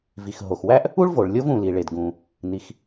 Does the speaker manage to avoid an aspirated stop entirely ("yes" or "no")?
yes